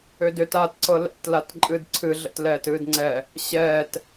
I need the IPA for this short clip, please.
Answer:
ʏ d ʏ t a t ǀ ɤ l ɛ̰ t l a t ǃʼ ɨː d ǀʰ ɨ ɮ ə̰ t l ɛː t ɨː d ŋ͡ǀ ɛ | ɕ ɛː t

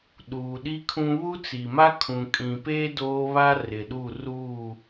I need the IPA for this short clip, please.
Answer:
ɗ uː˨ ɗ i˦ kʰ ũ˦ β u˦ t͡s i˨ m a˦ kʰ ũ˨ kʼ ĩ˨ p e˦ d oː˦ β a˦ r ɪ˨ ɗ u˦˨ r uː˦˨

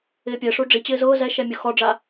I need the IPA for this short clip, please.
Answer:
ɪː pʲ ɛ ʂ u ɖ͡ʐ i t͡ɕ ɪː z ʊː z ɛ ʃ ɛ mʲ ʊ x ɔ ɖ͡ʐ a

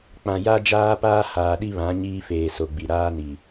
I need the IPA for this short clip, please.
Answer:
k͡p ã˨ j a˦ d͡ʒ aː˦ p aː˦ h aː˨ ɗ i˦ β ã˨˦ ɲ iː˦ f eː˨ s o˨ ɡ͡b i˨ ɾ aː˦ n i˨

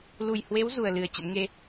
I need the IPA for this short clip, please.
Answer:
l u˨˩ j h w e˨˦ w z u˨˩ ə̯ l ɨ˨˩ ə̯ t͡ɕ ə̰˧˥ n ŋ e˧

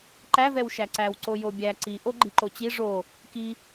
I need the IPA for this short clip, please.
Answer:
ǃ æ v ɛ w ʃ æ ǀ æ w ǀ o j o bʲ æ ǀ i ʔ o ɡ͡ǃ i ǃ o t͡ɕ i ʐ o | k i

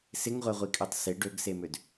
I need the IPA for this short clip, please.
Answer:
s ɪ ŋ ʁʷ ɛ ʁʷ i kʼ ø tˤ s ɪ ɖ ø ɡ s e m ø d

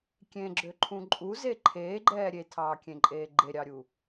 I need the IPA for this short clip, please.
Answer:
kʲ ẽ ɡ͡ǁ ø ǃʰ ũ ǃʼ u z e ǃʰ eː ɡ͡ǃ ɛː ɾʲ e tʰ ɑː kʲ ẽ ǃʼ eː ɡ͡ǃ e ɾʲ ɑ ɾʲ u

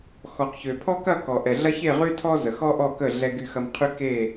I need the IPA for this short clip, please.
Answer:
x ɔ˩ q ç ø˩ pʰ ɔ˦ k ɐ˦˨ k ɔ˩ ʔ ɛ˩ ɮ ɐ˦ ç e˦˨ ʁ y˦ tʰ ɔ˦ z ə˩ x ɔ˦ ʔ ɔ˦˨ k ə˦˨ ɮ ɛ˦ ɡ y˦˨ x ɐ˦ m qʰ y˦ k e˦˨

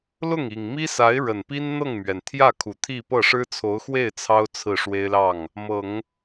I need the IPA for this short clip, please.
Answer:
l ʊ˥˩ ŋ i˨˩ ŋ m i˥ s a˧˥ ɪ̯ ɻ ə˨˩ n p i˥ n n̪ ɤ˥˩ ŋ m ɥ ɛ˩ n t̪ʰ j ä˥˩ kʰ u˨˩ t̪ʰ i˥˧ p ɤ˥˩ ʂ ɻ̩˥ t͡sʰ o˧˥ ʊ̯ x w e˥˩ ɪ̯ t͡sʰ ɑ˥ ʊ̯ t͡sʰ ɹ̩˥˩ ʂ w e˥ ɪ̯ l ɑ˥˩ ŋ | m ɤ˨˩˦ ŋ

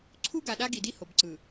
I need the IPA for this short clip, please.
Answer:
ǀʰ u˦ ɡ a˨ ɗ a˦ ɡ i˨ d i˦ h o˨ b ǀ ɯ˨

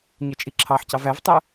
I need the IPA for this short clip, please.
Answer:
ɲ œ t͡ʃʼ i ǁʰ ɑ ħ c ɑ v æ v tˤ œ

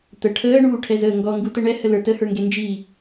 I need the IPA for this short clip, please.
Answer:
t̪ ə ʈʰ əː ɳ uː ʈʰ ɛ z əː ŋ ɡ ɔ ŋ ɡ u t ə ɳ ɛ h ə l ə˞ t ə h ə˞ ŋ ɡ e n d͡ʒ i

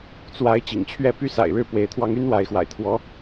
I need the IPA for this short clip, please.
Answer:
t͡s w a˧˥ ɪ̯ t͡ɕ ḭ˨˩ ŋ t͡ɕʰ ɥ ɛ˥˩ p y˥ s a̰˨˩ ɪ̯ ɻ ɻ̩˥˩ p w e˧˥ ɪ̯ t̪ʰ w ɑ˥ ŋ y˥ n w a˧˥ ɪ̯ x w a̰˨˩ ɪ̯ t̪ʰ w ɔ˧˥

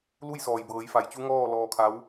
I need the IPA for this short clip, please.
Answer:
l u˥˨ j s ɔː˩ j b ɤː˩˧ j f a˩ j t͡ɕ u˧˥ ŋ ɔː˥˨ l ɔː˧ kʰ a˧˥ w

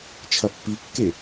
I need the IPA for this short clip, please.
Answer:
t͡ʃʰ ɐ pː i kː e

